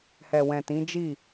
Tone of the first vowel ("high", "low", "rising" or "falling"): low